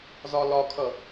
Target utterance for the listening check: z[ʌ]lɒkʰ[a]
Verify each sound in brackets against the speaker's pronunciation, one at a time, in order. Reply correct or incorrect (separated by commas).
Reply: incorrect, incorrect